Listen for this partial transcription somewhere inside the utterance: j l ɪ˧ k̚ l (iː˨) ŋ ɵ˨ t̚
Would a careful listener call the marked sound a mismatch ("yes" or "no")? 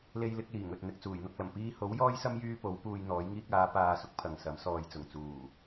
yes